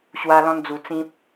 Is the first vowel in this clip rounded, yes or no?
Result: no